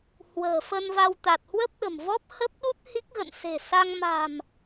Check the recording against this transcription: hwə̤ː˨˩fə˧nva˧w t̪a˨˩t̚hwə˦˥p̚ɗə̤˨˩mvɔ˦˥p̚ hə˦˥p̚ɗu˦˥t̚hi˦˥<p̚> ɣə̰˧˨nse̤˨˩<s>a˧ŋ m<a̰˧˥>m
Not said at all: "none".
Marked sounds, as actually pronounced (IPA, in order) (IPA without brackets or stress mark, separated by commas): k̚, s, a̤˨˩